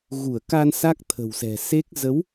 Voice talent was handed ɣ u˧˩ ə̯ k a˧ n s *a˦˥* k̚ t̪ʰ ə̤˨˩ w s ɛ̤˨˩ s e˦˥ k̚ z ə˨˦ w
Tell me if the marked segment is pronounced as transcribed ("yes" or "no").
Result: yes